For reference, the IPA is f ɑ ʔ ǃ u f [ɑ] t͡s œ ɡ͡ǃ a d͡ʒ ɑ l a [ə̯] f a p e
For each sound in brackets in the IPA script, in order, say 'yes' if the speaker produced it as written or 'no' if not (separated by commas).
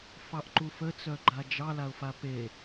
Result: no, no